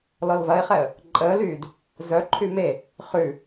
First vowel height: mid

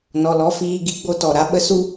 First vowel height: mid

